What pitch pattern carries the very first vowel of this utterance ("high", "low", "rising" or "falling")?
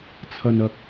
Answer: low